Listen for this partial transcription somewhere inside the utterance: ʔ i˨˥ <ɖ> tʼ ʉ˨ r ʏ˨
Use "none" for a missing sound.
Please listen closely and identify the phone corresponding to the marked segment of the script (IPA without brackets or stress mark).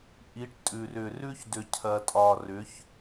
ʈ